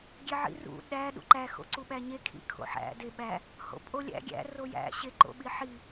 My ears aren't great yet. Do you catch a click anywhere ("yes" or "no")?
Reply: yes